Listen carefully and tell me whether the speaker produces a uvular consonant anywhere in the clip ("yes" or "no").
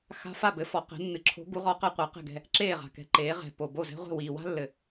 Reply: yes